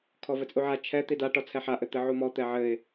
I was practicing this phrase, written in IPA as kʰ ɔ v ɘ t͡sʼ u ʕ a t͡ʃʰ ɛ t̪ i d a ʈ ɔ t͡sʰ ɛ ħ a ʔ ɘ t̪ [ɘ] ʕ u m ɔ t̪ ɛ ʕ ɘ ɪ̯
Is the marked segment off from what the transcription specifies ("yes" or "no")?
no